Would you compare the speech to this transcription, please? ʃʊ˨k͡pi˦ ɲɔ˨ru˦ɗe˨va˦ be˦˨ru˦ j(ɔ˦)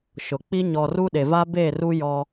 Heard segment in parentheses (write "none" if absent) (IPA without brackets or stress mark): ɔ˦